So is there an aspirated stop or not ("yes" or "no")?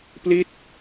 no